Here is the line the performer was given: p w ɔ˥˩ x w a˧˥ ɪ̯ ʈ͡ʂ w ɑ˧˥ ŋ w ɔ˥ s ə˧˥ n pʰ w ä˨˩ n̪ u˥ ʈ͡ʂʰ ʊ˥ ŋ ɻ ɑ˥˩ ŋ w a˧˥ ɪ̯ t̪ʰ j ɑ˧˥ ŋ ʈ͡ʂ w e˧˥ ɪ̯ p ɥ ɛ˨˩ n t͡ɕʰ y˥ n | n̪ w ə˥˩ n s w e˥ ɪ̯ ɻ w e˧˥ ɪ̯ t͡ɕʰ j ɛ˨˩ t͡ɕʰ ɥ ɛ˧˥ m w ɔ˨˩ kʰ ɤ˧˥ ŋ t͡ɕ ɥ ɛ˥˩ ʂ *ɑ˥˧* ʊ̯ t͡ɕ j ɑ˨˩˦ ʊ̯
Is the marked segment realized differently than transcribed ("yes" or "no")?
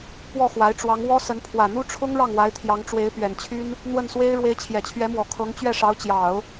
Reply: yes